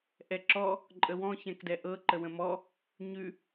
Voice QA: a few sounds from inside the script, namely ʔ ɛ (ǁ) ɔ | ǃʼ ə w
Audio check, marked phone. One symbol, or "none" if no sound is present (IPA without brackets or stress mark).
ǁ